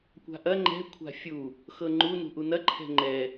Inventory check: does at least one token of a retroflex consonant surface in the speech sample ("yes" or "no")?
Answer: no